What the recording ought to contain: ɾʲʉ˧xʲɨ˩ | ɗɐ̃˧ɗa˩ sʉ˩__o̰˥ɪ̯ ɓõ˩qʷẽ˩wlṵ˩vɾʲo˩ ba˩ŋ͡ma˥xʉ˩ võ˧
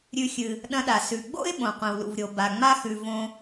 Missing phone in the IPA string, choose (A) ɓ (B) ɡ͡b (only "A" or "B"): B